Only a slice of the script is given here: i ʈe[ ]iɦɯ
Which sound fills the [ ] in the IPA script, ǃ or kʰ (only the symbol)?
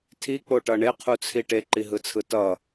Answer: ǃ